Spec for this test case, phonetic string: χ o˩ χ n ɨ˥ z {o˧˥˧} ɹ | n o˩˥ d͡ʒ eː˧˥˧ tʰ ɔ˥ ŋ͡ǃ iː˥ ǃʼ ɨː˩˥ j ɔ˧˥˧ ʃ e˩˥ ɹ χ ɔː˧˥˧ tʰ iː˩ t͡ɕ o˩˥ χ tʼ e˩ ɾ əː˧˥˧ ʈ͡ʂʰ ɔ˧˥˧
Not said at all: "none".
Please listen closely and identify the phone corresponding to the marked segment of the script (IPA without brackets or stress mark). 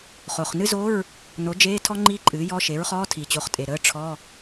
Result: o˧˥˧